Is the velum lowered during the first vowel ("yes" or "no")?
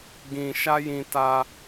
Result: yes